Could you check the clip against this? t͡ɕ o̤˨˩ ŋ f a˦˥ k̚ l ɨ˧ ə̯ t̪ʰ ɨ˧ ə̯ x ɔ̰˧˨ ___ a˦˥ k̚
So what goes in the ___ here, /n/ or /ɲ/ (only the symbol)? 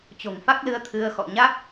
ɲ